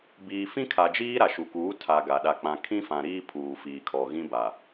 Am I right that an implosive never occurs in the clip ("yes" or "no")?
no